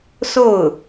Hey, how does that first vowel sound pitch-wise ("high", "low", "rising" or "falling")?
falling